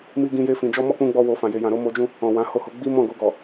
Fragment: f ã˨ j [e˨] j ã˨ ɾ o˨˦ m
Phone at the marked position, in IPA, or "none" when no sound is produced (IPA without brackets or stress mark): e˨